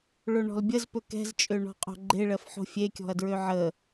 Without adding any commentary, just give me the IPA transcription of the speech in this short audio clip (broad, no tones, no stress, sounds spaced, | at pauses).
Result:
ɭ o ɳ ɔ̤ l bʲ ə z p ɵ k ɛ̤ z t͡ʃʼ ø ɳ ɔ̤ qʼ o̤ ɡ͡ǃ e ɭ ɜ f ħ o̤ fʲ e kʲ ɔ̤ ɐ̯ d ɹ ø ʕ ə